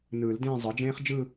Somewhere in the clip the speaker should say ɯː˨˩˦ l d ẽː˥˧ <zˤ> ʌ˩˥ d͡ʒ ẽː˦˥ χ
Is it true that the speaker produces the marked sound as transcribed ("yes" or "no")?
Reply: yes